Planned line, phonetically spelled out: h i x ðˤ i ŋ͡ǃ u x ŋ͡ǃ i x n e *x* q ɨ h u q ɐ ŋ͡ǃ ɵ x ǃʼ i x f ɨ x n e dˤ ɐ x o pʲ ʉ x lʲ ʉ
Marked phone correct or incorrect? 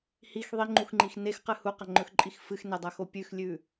correct